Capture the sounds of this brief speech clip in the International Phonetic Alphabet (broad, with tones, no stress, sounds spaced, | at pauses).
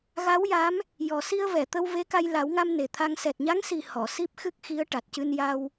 ɣ a˧˥ w j a˧˥ m | j ɔ˨˩ s i˧ ə̯ v ɛ˨˩˨ t̪ ə˧ w v e˧˥ k a˧ j l a˨˩˦ w ŋ a˧ m n e˨˩ t̪ʰ a˧ ŋ s ɛ˨˩ t̚ ɲ a˧˥ ŋ s i˨˩ h ɔ˨˩˨ s i˦˥ p̚ x ɨ˦˥ k̚ x i˧˥ ə̯ ʈ a˨˩ t̚ c ɨ˧ n j a˧ w